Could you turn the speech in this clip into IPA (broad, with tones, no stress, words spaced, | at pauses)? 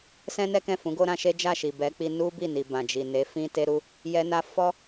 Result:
sɛ̃˦nɛ˦kɛ̃˦˨fũ˨˦ ɡo˦ɾã˧ʃe˦ d͡ʒa˦˨ʃi˨bɛ˨˦k͡pi˧ nu˦bi˦˨ni˨ bã˨d͡ʒi˨ ne˨˦fĩ˦ te˦ɾu˦ | jɛ˧na˧ fɔ˦